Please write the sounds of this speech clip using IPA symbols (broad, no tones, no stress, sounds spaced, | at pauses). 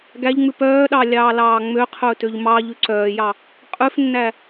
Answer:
ɡ æ ʎ ŋ͡m ʉ p œː ɗ ɑ lʲ ɑː l ɑː ŋ͡m ø qʰ ɵː t ø ʎ m ɑ ʎ ʉ ǀ œː j ɑ | qʼ ʉ f nː æ